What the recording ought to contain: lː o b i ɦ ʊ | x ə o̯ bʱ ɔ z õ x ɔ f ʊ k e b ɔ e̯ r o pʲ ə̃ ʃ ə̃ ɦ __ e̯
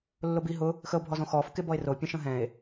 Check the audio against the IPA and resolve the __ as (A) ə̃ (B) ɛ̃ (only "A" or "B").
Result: B